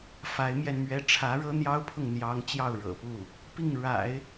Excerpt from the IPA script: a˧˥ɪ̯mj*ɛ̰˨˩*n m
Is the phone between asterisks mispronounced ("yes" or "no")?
yes